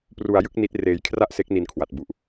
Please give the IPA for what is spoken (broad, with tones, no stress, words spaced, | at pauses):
pru˧a̯jɯ˥˩k̚ ni˦˥t̚ reː˧jkʰra˥˩ʔse˦˥k̚ ni˧nkʰwa˨˩t̚bu˨˩ʔ